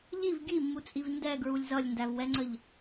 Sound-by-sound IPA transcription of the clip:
ʎ i v ɡ i mː u t͡sʼ i v n d ɛ ɡ ɹ u lʲ z ʌ lʲ n d æ v w ɛ ŋ͡ǀ ə ʎ

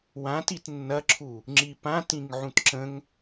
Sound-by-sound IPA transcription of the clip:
w ã t i t nː ɐ ǁʰ u | ŋ͡ǁ i p ã t ĩ ŋ ʕ ũ t ǁ ə̃ ŋ

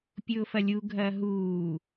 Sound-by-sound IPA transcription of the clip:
pʲ ʊː f ɐ lʲ u ɡʱ ɐː ɦ uː

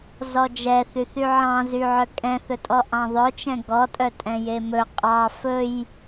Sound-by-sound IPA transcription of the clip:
z ɔ d͡ʒ ɛ θ y θ y ʕ ɑ̃ z y ʕ œ kʼ ɛ̃ θ ɵ tʼ ɔ ʔ ɑ̃ ðˤ œ t͡ʃ ɛ̃ ɡ ɔ tʼ œ tʼ ɛ̃ j e m ɵ qʼ ɑ f ɵ j

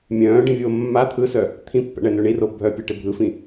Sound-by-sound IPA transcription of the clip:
mʲ œ̃ː ɖ ĩ vʲ oː mː a t̪ʰ ɯ s œ | t̪ʰ ĩ pː ɛ̰ ɳ ɛ n ø ɳ i r o bʱ œ pʲ ɛ ʈ ɪ bʱ ɯ f ĩ

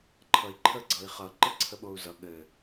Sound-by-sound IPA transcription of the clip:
ǃʰ ʌ i̯ ǃʰ ə ɡ͡ǀ ʌ i̯ χ ʌ ǃ ɘ ǀʰ ə ɓ o u̯ z ʌ ɠ ɘ

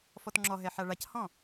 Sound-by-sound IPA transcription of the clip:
f ɔ t ŋ͡ǁ ɔ ɦ ɛ ħ a ɭ a c h ɔ̃

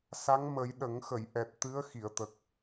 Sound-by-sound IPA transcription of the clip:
s a˧˥ ŋ m ə˨˩˦ j ɗ ə˨˩˦ ŋ x ə˨˩˨ j ʔ ɛ˨˩ t̚ t̪ ɨ˧˥ ə̯ x i˨˩˨ ə̯ t̪ ə˨˩ k̚

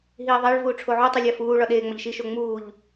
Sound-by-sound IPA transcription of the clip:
ɦ iː ðˤ æ ɭ v uː ʈ͡ʂʰ o ʕ u tˤ i lʲ æ f uː ɭ ɒ ɗ eː ŋ͡m ɒ ʎ ʃ i ʃ o ŋ͡m uː ʎ

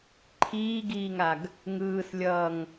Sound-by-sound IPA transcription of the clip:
ǃʰ iː ɡ iː ŋ a ɡ | ŋ ɯː s lʲ ʌː ŋ

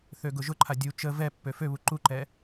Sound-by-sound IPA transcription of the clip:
θ ø ɡ ʊ ʒ ʊ ǃʰ a dʲ u t͡ʃ ə v ɛ pː ø f ø β u ǃ u ǃ ɛ

